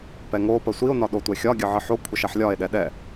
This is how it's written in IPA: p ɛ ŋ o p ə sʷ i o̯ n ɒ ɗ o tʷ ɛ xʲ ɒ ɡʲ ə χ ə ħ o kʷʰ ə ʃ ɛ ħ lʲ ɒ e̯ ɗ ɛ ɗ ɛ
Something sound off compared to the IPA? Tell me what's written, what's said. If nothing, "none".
χ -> ʕ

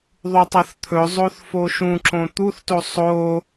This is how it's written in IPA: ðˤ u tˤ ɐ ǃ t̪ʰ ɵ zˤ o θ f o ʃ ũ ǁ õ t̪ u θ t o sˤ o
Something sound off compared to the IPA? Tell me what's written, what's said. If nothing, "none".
ǃ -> θ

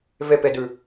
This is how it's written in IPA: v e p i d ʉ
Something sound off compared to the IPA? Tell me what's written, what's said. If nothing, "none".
i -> e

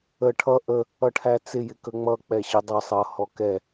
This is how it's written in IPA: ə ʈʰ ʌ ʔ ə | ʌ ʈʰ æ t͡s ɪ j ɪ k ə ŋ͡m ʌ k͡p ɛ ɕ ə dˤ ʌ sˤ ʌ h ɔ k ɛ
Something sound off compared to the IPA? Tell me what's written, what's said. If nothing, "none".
none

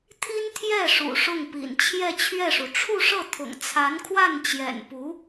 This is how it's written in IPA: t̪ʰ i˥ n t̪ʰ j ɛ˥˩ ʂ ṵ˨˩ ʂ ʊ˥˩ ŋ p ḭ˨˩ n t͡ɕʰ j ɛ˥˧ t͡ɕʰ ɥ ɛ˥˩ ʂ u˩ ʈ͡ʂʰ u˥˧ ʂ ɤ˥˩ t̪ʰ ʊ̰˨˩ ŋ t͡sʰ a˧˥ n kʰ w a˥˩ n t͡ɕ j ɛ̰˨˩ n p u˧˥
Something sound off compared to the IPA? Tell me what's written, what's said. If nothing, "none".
none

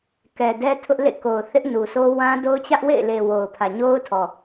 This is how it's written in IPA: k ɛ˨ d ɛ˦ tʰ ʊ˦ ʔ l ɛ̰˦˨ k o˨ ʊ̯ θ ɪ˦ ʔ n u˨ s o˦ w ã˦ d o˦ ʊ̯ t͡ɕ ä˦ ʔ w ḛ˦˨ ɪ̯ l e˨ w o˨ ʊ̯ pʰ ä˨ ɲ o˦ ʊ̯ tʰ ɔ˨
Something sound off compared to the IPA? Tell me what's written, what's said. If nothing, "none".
ɛ̰˦˨ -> ḛ˦˨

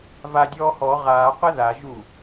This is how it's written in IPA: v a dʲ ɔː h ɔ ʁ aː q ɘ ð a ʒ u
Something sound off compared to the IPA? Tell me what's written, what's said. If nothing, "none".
none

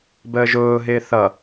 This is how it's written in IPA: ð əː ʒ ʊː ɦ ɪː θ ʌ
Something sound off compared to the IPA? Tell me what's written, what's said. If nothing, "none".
ð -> b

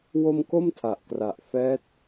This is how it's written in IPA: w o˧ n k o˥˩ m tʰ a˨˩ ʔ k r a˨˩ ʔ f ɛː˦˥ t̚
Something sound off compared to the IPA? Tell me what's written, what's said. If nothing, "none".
n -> m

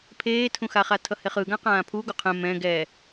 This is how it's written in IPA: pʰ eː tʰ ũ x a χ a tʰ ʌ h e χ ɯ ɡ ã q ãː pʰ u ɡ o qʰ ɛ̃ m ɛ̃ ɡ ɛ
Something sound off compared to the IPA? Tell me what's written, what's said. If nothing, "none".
none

